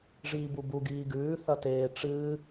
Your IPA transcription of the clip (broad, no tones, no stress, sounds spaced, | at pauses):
ʐ iː b u b u ɡ iː ɡ ʉː θ ɐ t eː ʈ͡ʂ ɨː